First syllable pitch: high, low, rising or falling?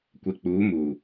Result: low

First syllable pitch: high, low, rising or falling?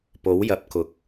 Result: rising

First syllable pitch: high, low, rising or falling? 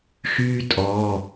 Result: high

